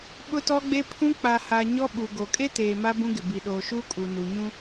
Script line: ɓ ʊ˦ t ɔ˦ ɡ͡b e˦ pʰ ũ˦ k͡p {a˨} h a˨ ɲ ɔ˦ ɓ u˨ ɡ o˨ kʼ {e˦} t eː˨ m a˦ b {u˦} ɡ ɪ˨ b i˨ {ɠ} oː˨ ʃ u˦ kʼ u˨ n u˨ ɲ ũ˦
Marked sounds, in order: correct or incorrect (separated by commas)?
correct, correct, incorrect, incorrect